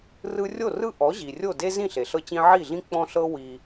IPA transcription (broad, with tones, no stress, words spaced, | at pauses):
rɯ˧rʲo˥˩ rɯ˥ʔɔ˩˥ ʑi˩rʲo˥˩de˥ zĩ˥˩ɬe˩ɬɤ˧t͡ɕĩ˧ ʕi˥˩ɮĩ˥ k͡pɔ̃˧ɬɤ˧wi˩